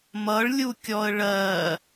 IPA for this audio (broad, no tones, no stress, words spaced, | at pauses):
mʌɭlʲukʲɔə̯ ɭɜ